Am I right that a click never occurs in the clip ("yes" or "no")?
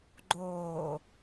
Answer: no